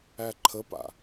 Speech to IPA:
æ ǃʰ ə p a̰

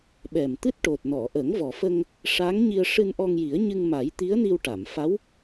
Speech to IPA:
ɓ ɛ˨˩ m t̪ ɨ˦˥ t̚ ʈ o˨˩ t̚ n ɔ˨˩˨ ʔ ə˨˩˦ ŋ v ɔ˨˩ f ə˧ ŋ | ʂ a˧˥ ŋ ɲ i˧ ə̯ ʂ ɨ˧ n ʔ ɔ˧ ŋ j i˨˩˦ ə̯ ɲ ɨ˧ ŋ m a˨˩˦ j t̪ i˧˥ ə̯ n i˧ w ʈ a˨˩˨ m f a˧˥ w

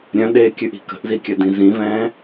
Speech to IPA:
ɾʲ œ̃ ɗ eː kʲ ʉ ʔ i̤ k ə̤ ʔ z i kʲ œ d ĩ z ĩ v ɛ̃ː

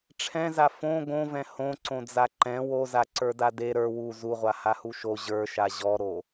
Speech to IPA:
ʈ͡ʂʰ ɛ̃ z a f õ ɡ õ v ɛ̃ h õ ǀ õ d͡z a ǃ ɛ̃ w o z a ǀ ə˞ d a d e ɾ ə˞ w u z u ʁʷ a h a h u ʃ o ʑ ə˞ ʃ a ʑ ɔ ɾ o

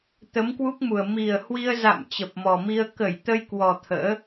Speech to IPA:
t̪ ə˨˦ m k w u˦˥ k̚ m u˨˩ ə̯ m i˨˩ ə̯ h w i˧ ə̯ z a̰˧˨ m t͡ɕ ə˨˩ p̚ m ɔ˨˩ m i˧ ə̯ k ə˧˩ j t̪ ə˧ j k w ɔ˨˩ t̪ʰ ə̰ː˧˥

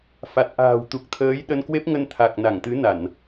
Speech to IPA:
f a˨˩ t̚ ʔ a̤ː˨˩ w t̪ u˨˩ k̚ t̪ʰ əː˨˦ j ɗ ə˧ n k w e˦˥ p̚ ŋ ə˧ n t̪ʰ a˨˩ k̚ n a˧˩ ŋ t̪ ɨ˨˦ n a˧˩˨ n

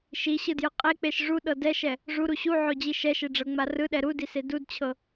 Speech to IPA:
ʃ i ɕ ɯ d j ɯ qʼ e k͡p e ʃ ʐ u ɗ ɤ d ɛ ʃ ɛ | ʐ u ɾ u ɕ u ʕ o d͡ʑ i ʃ ɛ ʃ e ɖ͡ʐ ɤ ŋ͡m a r ɯ ɗ ɛ ɾ u d i s e d u d t͡ɕʰ ɤ

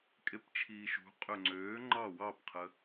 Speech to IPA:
kʼ e p t͡ʃʰ iː ʃ ṳ qʼ ø ŋ͡ǀ øː ŋ͡ǃ ɑ w ɑ p qʰ ə

